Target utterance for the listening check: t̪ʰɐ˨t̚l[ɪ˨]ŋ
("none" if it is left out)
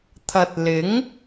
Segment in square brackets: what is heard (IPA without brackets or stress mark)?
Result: ɪ˨˥